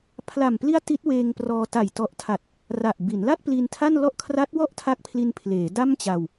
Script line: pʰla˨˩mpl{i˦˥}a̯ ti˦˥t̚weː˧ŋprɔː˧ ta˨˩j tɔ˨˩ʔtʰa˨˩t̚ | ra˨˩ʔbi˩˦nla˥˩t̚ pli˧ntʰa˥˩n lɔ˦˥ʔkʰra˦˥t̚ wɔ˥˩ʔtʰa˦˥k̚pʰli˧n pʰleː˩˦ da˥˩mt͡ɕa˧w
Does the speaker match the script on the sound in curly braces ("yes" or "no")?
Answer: yes